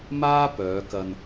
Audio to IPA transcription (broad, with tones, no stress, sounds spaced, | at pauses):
m aː˥ p œː˨˧ k ɐ˧ n